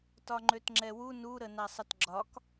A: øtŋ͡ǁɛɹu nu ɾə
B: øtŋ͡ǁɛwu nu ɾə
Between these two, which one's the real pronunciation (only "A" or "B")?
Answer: B